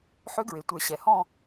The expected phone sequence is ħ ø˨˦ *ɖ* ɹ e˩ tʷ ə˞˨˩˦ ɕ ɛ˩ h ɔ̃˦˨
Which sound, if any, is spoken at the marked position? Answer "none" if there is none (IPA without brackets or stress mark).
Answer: ɡ